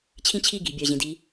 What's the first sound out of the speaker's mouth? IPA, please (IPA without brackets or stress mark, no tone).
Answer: t͡ɕʰ